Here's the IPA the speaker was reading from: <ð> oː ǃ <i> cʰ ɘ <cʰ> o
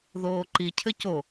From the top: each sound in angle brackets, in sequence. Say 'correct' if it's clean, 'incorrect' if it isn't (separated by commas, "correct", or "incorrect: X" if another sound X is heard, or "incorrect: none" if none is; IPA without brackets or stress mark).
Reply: correct, correct, incorrect: c